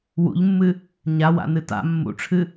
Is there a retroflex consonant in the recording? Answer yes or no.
yes